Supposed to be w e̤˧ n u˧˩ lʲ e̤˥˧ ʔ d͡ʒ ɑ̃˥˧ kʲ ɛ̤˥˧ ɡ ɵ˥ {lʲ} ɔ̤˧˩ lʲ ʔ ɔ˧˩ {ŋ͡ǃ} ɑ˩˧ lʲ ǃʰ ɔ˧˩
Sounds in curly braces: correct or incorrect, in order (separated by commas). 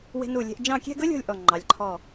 correct, correct